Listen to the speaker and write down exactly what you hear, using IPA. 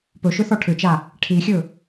pɵʃʏθɔ ʈʰʏt͡ʃa | ʈʰixʲɵ

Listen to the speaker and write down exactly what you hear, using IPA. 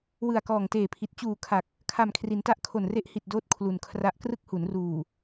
wɯ˨˩a̯kɔː˨˩ŋteː˨˩pʰi˨˩t̚ t͡ɕuː˨˩ kʰa˨˩k̚ | kʰa˨˩mkʰri˩˦nta˦˥ʔ kʰo˨˩nre˦˥ʔ hi˨˩t̚doː˦˥t̚ kʰlu˨˩nkʰra˦˥ʔ krɯ˥˩k̚hu˩˦nruː˨˩

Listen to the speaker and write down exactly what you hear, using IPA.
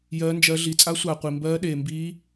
jɜː˦˥nd͡ʒɜ˦˥ ɮi˧t͡sʼa˦˥sʷaː˧ qʷi˧mbɜː˦˥ɗeː˧mbiː˦˥

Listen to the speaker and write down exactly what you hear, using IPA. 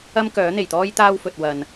ɐ˥mkœː˨˥n̪e˨˩jt̪ɔː˥j t̪aː˥wfɵ˨t̚ wɐ˨n

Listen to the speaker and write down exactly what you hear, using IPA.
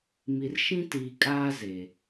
mi˨rʃĩ˦ tiː˨kʼaː˦ zeː˨

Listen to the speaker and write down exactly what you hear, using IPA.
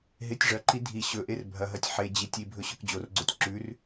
ɦetʲʐɐǃi dʱi ɕɵʔer bʱɐɦɐtʲ ħe d͡ʑitʲ ibʱɵ ɕɵkd͡ʑorɡ͡ǀotʲ ǁʉr

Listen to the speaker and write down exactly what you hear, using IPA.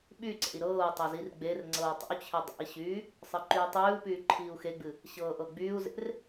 ɓyǀḛi̯ ɾɤːu̯ tˤezirɡ͡berŋ͡ǀɤː tˤə̰u̯t͡ɕʰe dˤḛi̯ɕyː | sˤɨǃyːtˤyːu̯pyː ǃʰiːu̯xeɡ͡bɨ | ɕɤːʔɤɡ͡byːu̯zḛr

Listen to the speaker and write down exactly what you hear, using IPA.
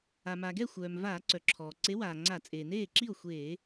a˩ma˩ɡɛ˥˩ xʷœː˩m vaː˧˩˧ǀœ˩ǁʰɔː˩ ǀe˨˥waː˩ŋ͡ǀa˧˩˧ t͡sʼeː˩neː˥˩ǁi˥˩o̯ xʷeː˧˩˧

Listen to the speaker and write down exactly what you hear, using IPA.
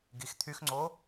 ɡixt̪ʰyxŋ͡ǀo

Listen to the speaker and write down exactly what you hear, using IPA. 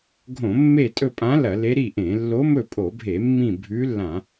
ɡʱõ˧˩˧mːe˦˨tʼɵ˦˨pʼã˧˥ lɐ˧˩˧le˧˥ɾi˦˨ʔẽ˧˩˧ lːo˧˥ mɵ˦˨pʼo˧˩˧bʱe˧˩˧ mːĩ˦˨bʱʉ˧˥lːã˧˩˧

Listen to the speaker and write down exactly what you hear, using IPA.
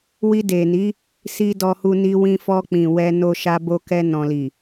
wi˧de˨ni˨˦ | si˧ dɔ˧hu˧ ni˧wĩ˧fɔ˧ k͡pĩ˨wɛ˧ no˧ʃa˧ bo˧kɛ˧nɔ̃˨li˨

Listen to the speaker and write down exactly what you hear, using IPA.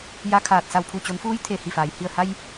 ja˧kʰaː˧˩t̚ sa˧˩wpʰu˧˩t͡ɕo˩˧nfuː˧˥j t̪ʰe˧˩hi˧˩faː˩j hi˧˩ə̯ha˧j

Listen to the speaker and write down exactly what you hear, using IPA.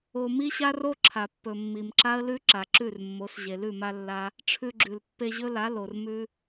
o˧mi˦ɕa˦ ro˦ǁʰa˨pːɵ˨mːi˨m ǁa˦ə̯lʉ˦ ǁa˨ǁʉ˦˨rmːo˨˦s ʑe˨lʉ˦˨ma˧ lːa˦ | ʈ͡ʂʰʉ˧ɡ͡ǁʉ˨l pːe˧ʑɵ˦la˨˦ lo˨rmʉ˦

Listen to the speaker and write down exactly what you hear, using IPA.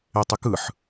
etˤɛkɯħ

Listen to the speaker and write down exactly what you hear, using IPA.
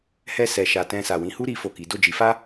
hɛ˧sɛ˨ʃa˨ tɛ̃˧sa˨ wĩ˨˦hu˦ ɾi˦fo˦˨ki˨˦ do˦˨d͡ʒi˨˦fa˦

